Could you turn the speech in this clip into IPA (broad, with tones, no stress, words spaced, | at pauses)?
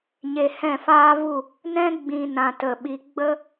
ɲe˧hɛ̃˦˨faː˦vu˦˨ | nɛ̃˦ ɡ͡bĩ˧ nã˧ tə˦˨ɓi˦ ɡ͡bə˦